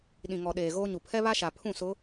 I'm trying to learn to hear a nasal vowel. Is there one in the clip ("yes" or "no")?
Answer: yes